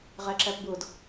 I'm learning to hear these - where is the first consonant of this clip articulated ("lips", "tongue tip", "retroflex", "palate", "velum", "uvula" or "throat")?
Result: uvula